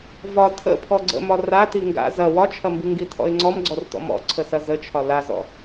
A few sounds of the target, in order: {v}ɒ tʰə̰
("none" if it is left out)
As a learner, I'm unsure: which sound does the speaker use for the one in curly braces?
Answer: v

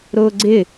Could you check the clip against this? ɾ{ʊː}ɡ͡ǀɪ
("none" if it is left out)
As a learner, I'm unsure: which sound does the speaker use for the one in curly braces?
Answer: ʊː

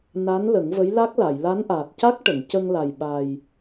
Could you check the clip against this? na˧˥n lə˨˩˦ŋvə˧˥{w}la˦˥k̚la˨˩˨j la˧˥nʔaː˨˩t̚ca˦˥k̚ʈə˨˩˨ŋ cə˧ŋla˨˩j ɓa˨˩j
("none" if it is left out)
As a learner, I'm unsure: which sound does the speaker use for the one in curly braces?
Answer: j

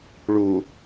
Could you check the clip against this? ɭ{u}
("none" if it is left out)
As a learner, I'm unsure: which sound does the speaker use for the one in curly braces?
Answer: u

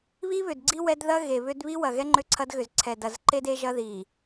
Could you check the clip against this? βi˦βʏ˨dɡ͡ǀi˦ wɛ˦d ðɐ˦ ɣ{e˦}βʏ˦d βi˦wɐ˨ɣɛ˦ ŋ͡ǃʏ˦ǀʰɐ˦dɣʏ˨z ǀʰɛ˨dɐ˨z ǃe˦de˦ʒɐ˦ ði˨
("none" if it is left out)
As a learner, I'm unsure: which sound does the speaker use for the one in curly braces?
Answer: e˨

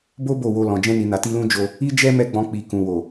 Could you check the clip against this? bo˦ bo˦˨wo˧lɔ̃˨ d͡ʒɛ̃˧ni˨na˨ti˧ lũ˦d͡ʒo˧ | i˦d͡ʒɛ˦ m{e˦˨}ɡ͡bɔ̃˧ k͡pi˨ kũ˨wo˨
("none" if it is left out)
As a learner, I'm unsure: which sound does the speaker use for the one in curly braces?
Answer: ɛ˦˨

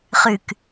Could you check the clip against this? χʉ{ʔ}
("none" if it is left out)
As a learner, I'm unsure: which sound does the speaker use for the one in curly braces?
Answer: k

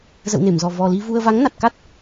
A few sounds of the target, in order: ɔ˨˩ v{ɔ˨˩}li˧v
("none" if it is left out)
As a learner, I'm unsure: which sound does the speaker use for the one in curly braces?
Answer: ɔ˨˩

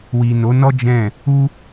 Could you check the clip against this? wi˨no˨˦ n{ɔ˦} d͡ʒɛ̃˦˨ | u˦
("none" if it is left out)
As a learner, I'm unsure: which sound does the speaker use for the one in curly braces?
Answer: ɔ˦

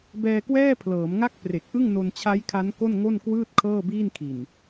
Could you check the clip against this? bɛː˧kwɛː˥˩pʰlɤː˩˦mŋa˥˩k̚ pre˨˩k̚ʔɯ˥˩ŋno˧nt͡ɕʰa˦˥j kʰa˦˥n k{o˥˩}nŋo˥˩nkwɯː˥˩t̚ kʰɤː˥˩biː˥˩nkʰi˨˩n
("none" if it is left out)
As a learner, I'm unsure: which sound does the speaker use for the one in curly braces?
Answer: o˥˩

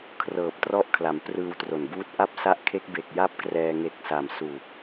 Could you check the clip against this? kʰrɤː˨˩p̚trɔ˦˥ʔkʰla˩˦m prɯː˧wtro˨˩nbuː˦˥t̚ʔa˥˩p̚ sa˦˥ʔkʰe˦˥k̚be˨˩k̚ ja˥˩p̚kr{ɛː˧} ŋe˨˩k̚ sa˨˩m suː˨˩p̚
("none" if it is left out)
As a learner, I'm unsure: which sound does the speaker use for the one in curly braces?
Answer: ɛː˧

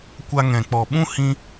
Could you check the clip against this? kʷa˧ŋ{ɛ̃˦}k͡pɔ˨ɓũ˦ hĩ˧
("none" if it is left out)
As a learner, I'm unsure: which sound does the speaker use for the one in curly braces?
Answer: ɛ̃˨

